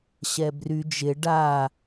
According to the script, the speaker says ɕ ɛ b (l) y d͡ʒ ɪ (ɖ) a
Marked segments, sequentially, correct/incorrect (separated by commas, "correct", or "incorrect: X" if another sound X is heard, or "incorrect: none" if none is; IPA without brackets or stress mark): incorrect: r, correct